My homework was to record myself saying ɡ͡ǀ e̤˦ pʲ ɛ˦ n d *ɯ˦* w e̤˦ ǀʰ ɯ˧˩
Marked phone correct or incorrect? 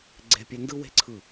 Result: correct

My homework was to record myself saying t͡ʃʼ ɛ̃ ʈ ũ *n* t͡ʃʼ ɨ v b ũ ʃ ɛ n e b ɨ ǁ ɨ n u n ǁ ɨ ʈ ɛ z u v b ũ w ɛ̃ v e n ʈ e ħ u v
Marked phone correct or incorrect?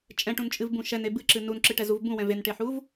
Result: correct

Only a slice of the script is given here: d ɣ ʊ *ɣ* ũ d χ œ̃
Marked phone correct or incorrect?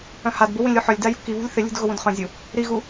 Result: incorrect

